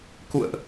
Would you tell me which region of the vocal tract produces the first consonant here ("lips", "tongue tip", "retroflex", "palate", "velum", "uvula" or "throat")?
velum